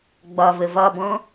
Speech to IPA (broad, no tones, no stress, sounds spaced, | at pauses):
ɡ͡b ɒ v ə v ɒ b ɔ̃